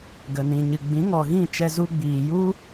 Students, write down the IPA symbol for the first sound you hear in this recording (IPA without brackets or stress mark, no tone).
ɡ